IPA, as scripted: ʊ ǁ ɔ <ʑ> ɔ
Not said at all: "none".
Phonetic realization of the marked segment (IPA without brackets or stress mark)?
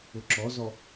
z